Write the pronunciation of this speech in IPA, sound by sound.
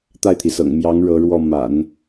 t̪a˥˩ɪ̯t̪ʰi˩sɤ̰˨˩ŋ mjɑ˧˥ŋ ɻɤ˧˥ɻwɔ˥˩ ma̰˨˩˦n

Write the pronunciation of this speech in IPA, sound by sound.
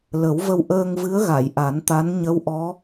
lə˨˩˦wvə˧w ʔəː˧ŋvɨ˧˥ə̯ɣa˨˩˨j ʔa˨˩˦nt̪a˧˥n ɲə˧˥wʔɔ˧˥

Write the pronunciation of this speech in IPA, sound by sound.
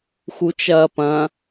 xut͡ʃɐːpɐ̃

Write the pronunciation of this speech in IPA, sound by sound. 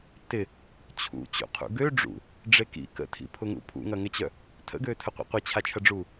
tɪ | t͡ɕʰṵ t͡ɕṵqʰṵɡø ɖ͡ʐṵ | ɖ͡ʐekḭ kə̰tʰḭpʰʊŋṵ pʰṵŋɐŋɪt͡ɕœ | tʰə̰ɡøːtʰəqʷḭ qʷɪt͡ɕʰat͡ʃʰɐɖ͡ʐuː

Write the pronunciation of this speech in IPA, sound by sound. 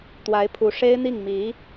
t̪wa˧˥ɪ̯pʰu˧˥ ʂe˥ɪ̯n̪i˥˩ŋmi˧˥

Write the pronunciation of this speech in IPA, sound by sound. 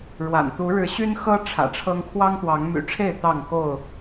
ɻwa̰˨˩n t̪u˨˦ɻɻ̩˨˦ɕy˦nxɤ˦ ʈ͡ʂʰä̰˨˩ʈ͡ʂʰɤ˦ŋ kʰwɑ˦ŋt̪wɑ˨˦ŋmy̰˨˩ʈ͡ʂʰe˥˨ɪ̯ t̪ɑ˥˨ŋko˥˨ʊ̯

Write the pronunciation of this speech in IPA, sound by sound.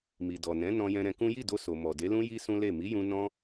mi˨dɔ˨ nɛ̃˨˦ nɔ̃˧jɛ̃˧ɾɛ̃˧kũ˦ ji˦˨do˧so˨ mɔ˨de˨˦lũ˦ji˦ sũ˦le˦˨ mi˨˦jũ˧ nɔ̃˦

